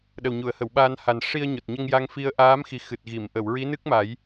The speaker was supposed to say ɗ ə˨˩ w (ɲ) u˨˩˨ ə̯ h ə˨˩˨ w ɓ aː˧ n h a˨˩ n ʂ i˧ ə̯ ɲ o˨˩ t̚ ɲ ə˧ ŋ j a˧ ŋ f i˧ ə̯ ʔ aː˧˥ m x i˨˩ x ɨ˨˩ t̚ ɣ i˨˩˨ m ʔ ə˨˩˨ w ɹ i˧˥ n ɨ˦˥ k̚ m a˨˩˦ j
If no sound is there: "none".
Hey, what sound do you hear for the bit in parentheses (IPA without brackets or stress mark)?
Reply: ɲ